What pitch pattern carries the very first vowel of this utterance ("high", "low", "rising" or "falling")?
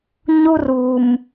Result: high